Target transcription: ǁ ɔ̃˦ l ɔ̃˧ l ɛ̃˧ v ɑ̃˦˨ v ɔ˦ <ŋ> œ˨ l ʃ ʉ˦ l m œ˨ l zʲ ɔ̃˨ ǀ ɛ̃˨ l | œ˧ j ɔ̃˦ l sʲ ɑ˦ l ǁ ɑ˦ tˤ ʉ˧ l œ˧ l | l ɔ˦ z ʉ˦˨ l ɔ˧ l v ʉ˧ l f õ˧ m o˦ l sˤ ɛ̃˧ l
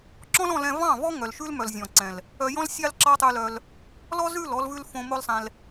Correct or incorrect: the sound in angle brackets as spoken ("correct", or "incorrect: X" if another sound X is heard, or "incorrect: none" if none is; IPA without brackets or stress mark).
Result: correct